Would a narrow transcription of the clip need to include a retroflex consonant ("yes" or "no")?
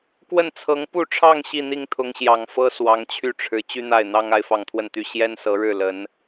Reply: yes